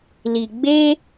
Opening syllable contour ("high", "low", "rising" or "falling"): low